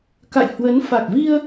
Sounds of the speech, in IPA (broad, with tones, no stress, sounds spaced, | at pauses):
k a̰˧˨ j h w ə˨˦ n f a˨˩ k̚ v i˧ ə̯